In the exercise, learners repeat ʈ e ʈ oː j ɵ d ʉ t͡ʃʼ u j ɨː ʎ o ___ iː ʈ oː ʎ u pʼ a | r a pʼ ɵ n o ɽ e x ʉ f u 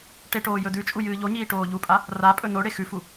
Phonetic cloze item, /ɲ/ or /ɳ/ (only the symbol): ɲ